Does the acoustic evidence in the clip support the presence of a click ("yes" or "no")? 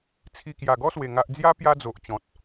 no